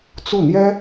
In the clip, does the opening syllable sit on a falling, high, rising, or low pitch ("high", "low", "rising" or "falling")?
falling